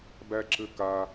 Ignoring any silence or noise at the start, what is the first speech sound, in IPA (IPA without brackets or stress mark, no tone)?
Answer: b